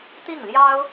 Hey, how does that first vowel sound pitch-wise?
falling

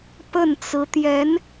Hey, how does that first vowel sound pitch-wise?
falling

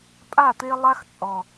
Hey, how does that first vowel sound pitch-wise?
falling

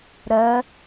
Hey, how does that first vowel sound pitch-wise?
rising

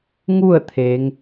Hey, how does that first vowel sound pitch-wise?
falling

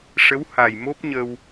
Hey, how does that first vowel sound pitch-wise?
rising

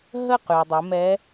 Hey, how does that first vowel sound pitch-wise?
falling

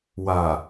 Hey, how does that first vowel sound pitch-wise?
low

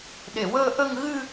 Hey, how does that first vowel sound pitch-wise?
low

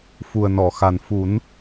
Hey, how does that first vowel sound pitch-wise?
low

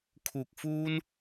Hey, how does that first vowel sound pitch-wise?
low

